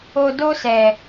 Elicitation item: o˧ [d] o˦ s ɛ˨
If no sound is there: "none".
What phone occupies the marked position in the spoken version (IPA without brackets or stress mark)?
d